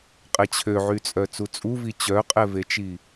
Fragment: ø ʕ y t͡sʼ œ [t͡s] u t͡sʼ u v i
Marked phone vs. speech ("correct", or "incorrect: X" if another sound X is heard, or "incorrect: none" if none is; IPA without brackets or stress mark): correct